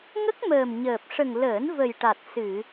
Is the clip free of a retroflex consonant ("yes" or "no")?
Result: no